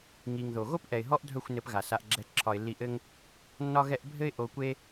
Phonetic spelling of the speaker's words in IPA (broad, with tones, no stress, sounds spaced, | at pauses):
ŋ i˨ ŋ ð o˨ ɣ o˦ p ʔ ɛ˨ ɪ̯ ɦ ɔ˦ ʔ dʱ œ˦˨ xʷ n ɘ˧ p ɣ a˨ s a˧ ʔ ɡ͡ǁ ɛ˧ ǁʰ ɒ˨ ɪ̯ lː i˧ ʔ ɘ˦ ŋ | nː ɒ˦ ɣ ɛ˦ ʔ bʱ ɘ˦ ɪ̯ ʔ o˧ kʷ e˦